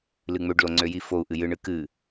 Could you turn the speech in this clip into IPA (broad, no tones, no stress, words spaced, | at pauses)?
lɨŋ͡møɖlo ŋ͡ǀøjifou̯ʔɨ jɨɳɨ kɨ